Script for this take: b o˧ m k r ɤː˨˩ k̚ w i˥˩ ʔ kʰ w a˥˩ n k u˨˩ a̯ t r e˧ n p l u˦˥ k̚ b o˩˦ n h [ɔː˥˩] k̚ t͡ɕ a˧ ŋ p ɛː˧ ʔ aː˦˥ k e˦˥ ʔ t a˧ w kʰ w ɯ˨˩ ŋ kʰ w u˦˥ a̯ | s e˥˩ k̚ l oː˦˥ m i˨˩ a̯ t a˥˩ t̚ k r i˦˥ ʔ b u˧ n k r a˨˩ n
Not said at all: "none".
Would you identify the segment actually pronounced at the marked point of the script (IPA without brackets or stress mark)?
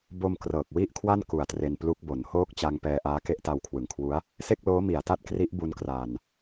oː˥˩